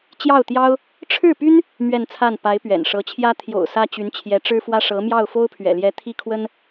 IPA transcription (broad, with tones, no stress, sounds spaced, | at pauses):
t͡ɕ j ɑ˥˩ ʊ̯ t̪ j ɑ˥ ʊ̯ | ʈ͡ʂʰ ɻ̩˥˩ p y˥ n | m ɥ ɛ˥˧ n t͡sʰ a˥˩ n p a˧˥ ɪ̯ p ɥ ɛ̰˨˩ n ʂ ɤ˧˥ t͡ɕʰ j ä˥ t̪ʰ j o̰˨˩ ʊ̯ s ä˥ t͡ɕ y˧˥ n t͡ɕʰ j ɛ˧˥ ʈ͡ʂ ɻ̩˥ f w ä˥ ʂ ɤ˧˥ m j ɑ˥˩ ʊ̯ f o˥ ʊ̯ pʰ ɥ ɛ̰˨˩ l j ɛ˧˥ t̪ʰ i˥ kʰ w ə˥ n